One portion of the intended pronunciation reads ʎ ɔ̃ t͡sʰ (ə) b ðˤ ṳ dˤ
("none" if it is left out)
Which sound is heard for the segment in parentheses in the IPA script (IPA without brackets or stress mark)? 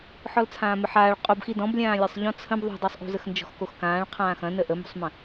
ə̃